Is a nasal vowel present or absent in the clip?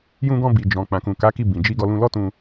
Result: present